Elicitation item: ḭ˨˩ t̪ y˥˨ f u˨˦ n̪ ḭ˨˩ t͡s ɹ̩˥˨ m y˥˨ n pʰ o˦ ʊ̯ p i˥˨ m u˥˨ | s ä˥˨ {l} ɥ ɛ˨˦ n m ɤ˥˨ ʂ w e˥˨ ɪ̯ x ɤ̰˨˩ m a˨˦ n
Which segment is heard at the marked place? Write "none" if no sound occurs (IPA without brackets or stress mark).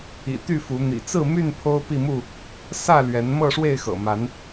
l